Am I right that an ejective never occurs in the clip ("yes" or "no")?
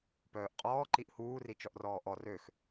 no